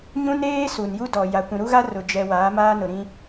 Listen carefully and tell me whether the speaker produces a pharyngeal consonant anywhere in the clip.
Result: no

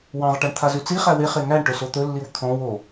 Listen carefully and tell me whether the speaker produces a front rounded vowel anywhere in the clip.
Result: no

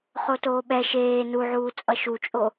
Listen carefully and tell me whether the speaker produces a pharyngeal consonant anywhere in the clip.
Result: yes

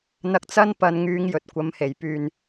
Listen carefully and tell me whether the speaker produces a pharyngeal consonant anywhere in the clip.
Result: no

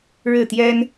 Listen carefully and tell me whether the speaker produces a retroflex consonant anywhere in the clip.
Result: yes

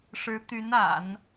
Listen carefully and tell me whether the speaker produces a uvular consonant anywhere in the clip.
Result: no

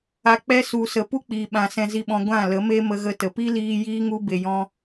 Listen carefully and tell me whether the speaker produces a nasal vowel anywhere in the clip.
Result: yes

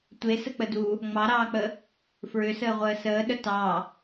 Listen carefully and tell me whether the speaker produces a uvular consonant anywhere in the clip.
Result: yes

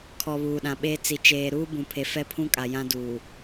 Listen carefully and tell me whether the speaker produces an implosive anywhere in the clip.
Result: yes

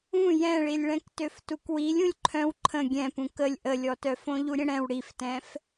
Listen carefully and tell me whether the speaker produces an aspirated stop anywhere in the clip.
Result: yes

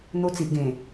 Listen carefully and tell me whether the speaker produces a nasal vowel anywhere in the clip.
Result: yes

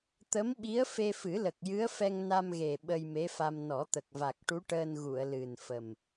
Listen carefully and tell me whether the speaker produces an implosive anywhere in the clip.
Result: yes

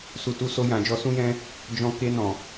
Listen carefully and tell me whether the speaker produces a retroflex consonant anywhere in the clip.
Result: no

